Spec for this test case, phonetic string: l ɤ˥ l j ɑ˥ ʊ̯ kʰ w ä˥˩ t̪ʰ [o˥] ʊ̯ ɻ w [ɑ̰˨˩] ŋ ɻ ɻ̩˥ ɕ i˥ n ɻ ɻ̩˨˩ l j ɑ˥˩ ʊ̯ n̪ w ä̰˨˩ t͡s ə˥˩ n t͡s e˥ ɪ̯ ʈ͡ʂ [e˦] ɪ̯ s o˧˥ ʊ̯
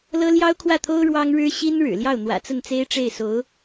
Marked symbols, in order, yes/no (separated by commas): yes, no, no